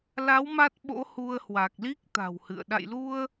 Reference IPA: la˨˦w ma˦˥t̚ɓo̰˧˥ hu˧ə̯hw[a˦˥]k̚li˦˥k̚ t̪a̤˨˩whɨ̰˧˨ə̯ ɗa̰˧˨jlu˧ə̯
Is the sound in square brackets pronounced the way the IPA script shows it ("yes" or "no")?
no